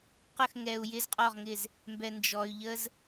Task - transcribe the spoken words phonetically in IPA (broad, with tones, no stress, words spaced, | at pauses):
qə˦˨xŋɛ˨u̯ jɪ˦zqʼɔ˦˨ʁŋɪ˦˨z | mbɛ˨ nd͡ʒɔ˨y̯ ʎə˦z